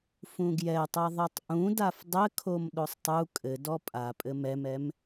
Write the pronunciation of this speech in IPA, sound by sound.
fũɡjɛtˤɛ ðˤɛtˤʔũdaf dˤɘkʰom ɗosˤtˤu kʼɘdɔ pʼapʼɘ mɛmɛm

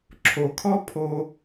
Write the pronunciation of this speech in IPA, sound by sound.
ǁʰo˨kʰɔ˦ pʰo˧

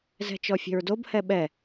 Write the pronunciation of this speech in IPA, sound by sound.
zɛ̤t͡ʃɔfʲe̤ɹdob hɛɓɛ

